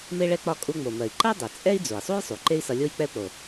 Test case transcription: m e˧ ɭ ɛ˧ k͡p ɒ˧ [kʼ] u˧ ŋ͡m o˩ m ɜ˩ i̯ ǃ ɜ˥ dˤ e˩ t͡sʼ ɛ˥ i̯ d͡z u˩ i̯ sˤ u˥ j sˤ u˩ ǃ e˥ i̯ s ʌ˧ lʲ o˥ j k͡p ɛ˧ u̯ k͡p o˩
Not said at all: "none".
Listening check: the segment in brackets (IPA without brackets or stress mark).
kʼ